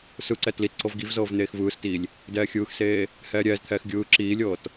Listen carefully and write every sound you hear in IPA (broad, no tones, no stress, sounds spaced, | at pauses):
s ɯ ǀ ɛ t l i t ǀ ɤ v ɡ i v z ɤː v n̪ eː x v ɯː s t iː lʲ | d ɛː xʲ ɯː x s eː | h ɛː ɾʲ ɛː z t̪ʰ ɛː x ɡʲ ɯː ǁ iː lʲ ɤː t